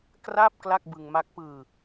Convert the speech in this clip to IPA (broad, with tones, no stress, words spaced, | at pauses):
kraː˥˩p̚ kla˥˩k̚bɯ˧ŋma˦˥k̚ pɯː˧